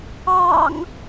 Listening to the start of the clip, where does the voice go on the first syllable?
low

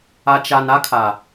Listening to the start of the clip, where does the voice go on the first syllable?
low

